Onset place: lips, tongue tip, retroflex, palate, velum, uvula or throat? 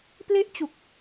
lips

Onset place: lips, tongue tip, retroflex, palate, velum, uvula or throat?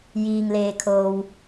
palate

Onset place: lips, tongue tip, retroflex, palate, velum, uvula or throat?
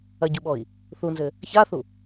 palate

